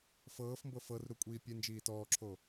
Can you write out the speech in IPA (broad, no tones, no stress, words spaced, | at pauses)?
fɤːfmbɤ fɤrɾukʷʼiː pʲend͡ʒiː tɔːǁʰo